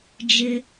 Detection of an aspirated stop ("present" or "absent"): absent